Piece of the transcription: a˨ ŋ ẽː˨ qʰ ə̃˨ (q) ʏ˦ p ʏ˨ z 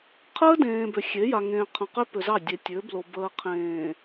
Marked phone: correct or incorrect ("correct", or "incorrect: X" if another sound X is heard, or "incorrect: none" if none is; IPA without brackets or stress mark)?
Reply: correct